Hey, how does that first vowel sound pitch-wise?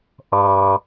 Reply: high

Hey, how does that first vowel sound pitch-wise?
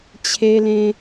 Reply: high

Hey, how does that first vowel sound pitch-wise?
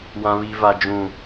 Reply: high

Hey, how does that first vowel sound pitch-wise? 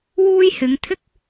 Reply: high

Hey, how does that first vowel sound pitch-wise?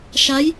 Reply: rising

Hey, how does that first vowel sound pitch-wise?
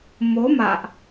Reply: rising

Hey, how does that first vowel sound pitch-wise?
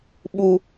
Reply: low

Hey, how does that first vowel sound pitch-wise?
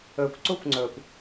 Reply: low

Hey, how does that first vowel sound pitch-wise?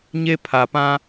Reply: high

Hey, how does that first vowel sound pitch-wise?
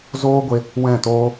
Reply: high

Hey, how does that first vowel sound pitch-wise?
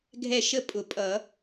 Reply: falling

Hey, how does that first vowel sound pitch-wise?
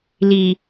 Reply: low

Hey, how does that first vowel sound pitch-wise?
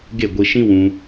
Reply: falling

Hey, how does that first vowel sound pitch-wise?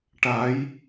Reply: rising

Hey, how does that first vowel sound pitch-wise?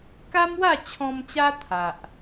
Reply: high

